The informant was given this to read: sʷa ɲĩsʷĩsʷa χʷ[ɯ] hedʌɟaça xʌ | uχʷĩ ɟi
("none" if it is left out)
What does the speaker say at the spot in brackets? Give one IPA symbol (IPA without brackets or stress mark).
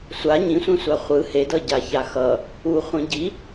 ɯ